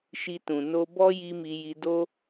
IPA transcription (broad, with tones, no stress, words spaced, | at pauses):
ʃi˧tũ˨ no˧bɔ˦ ji˦mi˧ji˧ do˦